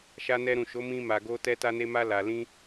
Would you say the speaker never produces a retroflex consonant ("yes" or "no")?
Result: yes